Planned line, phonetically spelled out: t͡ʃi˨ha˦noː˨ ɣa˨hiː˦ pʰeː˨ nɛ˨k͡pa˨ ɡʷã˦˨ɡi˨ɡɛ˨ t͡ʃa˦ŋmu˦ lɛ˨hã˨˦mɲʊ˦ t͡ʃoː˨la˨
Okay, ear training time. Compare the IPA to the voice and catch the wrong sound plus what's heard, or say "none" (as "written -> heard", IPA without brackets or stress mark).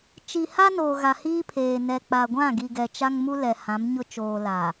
none